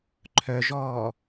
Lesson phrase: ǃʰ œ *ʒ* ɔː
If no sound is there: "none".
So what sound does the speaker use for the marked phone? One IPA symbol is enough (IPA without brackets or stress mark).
ʒ